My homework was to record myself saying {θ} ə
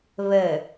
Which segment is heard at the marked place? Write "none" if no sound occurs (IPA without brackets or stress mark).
β